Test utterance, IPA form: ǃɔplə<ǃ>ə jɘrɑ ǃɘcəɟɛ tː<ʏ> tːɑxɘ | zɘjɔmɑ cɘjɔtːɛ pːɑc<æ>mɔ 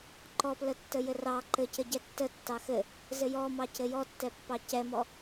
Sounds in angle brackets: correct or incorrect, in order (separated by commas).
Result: incorrect, incorrect, incorrect